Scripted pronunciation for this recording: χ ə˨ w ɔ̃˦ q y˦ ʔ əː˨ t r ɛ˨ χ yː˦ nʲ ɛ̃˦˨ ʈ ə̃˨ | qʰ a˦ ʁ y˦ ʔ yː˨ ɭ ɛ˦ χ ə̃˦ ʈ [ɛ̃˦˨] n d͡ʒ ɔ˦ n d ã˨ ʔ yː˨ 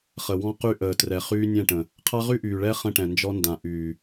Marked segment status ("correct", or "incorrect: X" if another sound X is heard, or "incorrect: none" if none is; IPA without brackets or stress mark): incorrect: ɛ̃˨